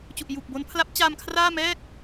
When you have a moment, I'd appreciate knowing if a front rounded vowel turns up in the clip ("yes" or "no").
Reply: no